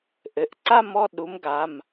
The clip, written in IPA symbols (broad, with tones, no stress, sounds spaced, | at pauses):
ʔ ɘ˩˧˩ ʔ ǀ a˥˧ m ɔ˥˧ ɗ u˨˥ m ɡ a˩˧˩ m